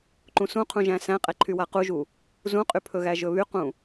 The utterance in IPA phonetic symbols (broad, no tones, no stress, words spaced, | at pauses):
ǃũsũqʰũʒæ̃ sæ̃qʼɛǃʰywa quʒu | zũqʼypʰɵɣæ ʒɵβyqũ